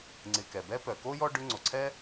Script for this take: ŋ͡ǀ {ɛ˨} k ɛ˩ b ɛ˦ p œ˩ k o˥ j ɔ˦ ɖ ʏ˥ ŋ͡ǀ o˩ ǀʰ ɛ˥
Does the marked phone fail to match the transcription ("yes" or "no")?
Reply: yes